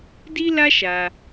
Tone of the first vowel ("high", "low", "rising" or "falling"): high